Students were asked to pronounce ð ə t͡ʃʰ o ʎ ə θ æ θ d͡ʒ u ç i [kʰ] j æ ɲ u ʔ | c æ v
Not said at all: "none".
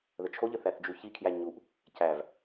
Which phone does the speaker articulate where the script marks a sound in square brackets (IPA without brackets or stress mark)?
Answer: kʰ